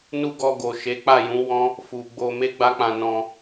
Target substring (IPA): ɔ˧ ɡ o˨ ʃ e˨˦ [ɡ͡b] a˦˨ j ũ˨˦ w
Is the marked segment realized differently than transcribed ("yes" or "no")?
yes